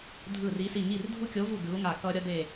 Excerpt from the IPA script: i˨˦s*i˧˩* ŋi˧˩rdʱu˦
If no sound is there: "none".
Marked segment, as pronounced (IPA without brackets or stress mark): i˧˩